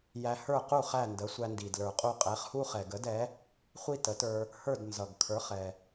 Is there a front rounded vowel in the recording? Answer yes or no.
no